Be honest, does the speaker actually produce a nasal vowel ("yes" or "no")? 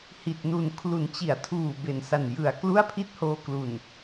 no